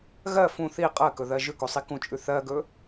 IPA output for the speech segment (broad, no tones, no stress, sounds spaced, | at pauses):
ɣ ɜ f ũ θ i qʼ ɜ k ɵ ð ɜ ʒ ʉ k o sˤ i k ũ t͡ʃʼ ʉ θ ɜ ɡ ɵ